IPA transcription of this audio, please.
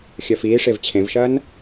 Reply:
xʲ ɐ f iː ʂ e v t͡ɕʰ ẽ v ʃ ɐː n

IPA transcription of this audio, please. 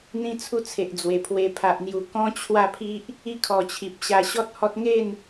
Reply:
n̪ ĩ˧ t͡sʰ u˧ t͡sʰ e˨ ʔ d͡z w e˨˩ pʰ w e˧ pʰ a˨ ʔ n̪ j u˨˩ k ɔ̃˦ t͡ɕʰ w a˥˧ pʰ i˦ ʔ | i˧ kʰ ɔ˨˩ t͡ɕʰ i˨ p̚ ɕ a˧ ɕ ɔ˦ t̚ h ɔ˦ t̚ ŋ e˥˧ n

